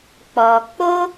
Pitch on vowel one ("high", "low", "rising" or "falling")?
low